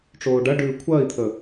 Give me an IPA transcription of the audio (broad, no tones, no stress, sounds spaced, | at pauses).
ʈ͡ʂ oː ɖ ɐ ɖ ʉː kʷʰ ɐː i̯ t̪ʰ ə